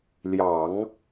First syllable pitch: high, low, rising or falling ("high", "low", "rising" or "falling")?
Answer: low